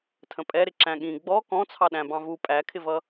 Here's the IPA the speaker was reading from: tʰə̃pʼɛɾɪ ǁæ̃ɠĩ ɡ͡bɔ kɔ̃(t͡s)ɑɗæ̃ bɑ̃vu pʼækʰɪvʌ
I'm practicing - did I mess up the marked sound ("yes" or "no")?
yes